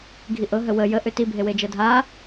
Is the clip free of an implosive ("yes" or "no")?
yes